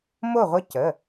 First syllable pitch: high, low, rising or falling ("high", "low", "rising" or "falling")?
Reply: falling